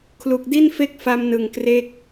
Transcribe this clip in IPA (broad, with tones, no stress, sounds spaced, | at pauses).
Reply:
kʰ l u˨˩ k̚ d i˥˩ n f e˥˩ k̚ f a˧ m n ɯ˨˩ ŋ k r e˦˥ k̚